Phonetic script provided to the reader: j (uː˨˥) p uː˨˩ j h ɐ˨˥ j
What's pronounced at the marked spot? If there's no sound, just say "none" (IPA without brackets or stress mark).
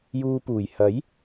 uː˧